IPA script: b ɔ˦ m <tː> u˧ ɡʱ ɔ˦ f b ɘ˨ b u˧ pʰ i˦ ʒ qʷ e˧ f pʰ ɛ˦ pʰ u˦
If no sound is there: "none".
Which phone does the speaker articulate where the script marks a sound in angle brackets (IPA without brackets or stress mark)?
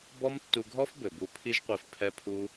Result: tː